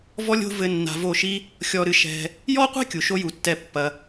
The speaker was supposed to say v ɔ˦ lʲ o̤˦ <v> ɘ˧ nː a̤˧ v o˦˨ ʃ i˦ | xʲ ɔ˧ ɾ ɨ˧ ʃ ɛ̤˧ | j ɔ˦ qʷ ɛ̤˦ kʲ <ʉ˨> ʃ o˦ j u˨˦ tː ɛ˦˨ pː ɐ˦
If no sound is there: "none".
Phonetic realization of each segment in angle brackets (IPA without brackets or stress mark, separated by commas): v, u˨